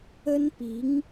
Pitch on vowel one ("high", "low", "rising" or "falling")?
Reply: high